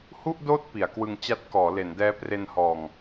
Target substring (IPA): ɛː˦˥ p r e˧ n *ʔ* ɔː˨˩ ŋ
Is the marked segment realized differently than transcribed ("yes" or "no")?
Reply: yes